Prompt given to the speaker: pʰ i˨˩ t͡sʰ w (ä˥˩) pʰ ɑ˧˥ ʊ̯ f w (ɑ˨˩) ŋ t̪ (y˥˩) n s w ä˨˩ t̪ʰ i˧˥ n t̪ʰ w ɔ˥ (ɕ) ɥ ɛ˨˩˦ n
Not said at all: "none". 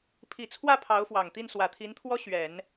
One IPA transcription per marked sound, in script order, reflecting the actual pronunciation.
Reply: ä˥˩, ɑ˨˩, i˥˩, ɕ

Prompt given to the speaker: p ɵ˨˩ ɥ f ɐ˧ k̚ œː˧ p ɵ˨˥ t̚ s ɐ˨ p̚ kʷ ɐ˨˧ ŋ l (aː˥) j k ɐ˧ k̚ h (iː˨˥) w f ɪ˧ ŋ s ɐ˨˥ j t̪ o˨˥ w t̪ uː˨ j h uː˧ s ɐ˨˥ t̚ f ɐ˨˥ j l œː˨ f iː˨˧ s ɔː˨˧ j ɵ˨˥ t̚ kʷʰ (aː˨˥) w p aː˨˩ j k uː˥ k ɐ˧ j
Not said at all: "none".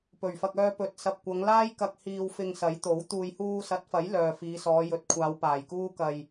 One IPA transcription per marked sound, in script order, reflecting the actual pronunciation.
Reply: aː˥, iː˧, aː˨˧

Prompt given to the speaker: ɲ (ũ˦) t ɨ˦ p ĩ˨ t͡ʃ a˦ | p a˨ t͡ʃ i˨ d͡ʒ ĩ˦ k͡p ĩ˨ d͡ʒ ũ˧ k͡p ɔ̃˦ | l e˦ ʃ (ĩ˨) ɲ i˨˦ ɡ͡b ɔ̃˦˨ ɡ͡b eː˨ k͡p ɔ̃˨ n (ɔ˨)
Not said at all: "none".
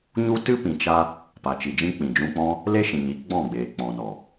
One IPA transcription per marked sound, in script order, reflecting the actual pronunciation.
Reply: u˦, ĩ˨, ɔ˨

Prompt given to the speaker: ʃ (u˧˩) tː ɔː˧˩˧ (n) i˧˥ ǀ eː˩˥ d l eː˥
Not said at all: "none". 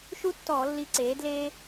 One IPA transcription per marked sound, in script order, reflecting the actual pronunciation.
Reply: u˥, lː

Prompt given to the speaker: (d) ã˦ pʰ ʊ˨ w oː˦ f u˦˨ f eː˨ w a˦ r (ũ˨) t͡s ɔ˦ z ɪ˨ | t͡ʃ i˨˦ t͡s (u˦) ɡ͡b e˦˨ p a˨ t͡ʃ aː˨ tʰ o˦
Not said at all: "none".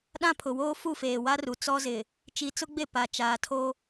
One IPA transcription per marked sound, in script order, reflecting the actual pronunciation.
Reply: ɗ, u˨, ʊ˦

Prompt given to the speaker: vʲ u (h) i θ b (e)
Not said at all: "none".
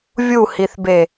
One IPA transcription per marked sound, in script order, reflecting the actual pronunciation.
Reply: h, e

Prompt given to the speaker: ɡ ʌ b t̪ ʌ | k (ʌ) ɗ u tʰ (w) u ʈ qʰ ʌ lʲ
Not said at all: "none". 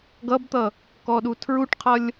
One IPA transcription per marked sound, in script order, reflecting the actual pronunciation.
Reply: ɔ, ɹ

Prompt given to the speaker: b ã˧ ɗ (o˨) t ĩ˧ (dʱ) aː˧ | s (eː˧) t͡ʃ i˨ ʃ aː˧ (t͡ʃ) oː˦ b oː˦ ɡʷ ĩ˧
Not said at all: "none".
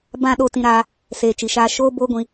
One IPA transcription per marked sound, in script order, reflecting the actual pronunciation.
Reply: o˧, ɾ, eː˨, ʃ

